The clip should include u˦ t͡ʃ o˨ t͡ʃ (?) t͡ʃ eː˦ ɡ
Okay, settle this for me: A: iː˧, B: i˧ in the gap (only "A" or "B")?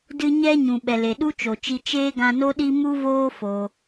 B